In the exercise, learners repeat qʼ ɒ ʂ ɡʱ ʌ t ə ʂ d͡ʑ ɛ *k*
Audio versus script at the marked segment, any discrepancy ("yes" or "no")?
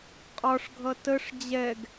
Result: yes